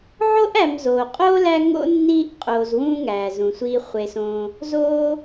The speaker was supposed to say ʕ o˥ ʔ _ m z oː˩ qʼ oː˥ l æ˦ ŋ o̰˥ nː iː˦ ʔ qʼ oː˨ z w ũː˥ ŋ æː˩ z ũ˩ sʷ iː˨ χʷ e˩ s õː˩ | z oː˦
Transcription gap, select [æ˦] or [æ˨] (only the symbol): æ˨